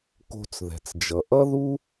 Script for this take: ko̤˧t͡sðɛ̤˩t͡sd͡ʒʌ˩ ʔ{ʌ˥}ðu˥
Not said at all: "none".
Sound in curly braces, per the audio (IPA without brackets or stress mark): ʌ˥